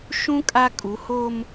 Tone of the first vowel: high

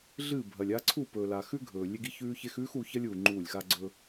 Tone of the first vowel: falling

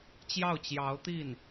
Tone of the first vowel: falling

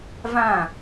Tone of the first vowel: falling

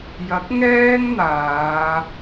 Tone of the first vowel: rising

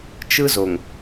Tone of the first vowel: high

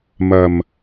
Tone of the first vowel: low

